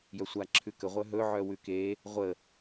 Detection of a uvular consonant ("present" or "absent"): present